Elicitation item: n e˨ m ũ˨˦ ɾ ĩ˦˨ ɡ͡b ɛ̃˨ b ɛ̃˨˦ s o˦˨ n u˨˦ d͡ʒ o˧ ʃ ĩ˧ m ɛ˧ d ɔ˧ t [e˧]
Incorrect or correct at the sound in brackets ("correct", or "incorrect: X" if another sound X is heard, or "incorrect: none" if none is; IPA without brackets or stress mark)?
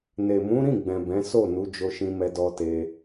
correct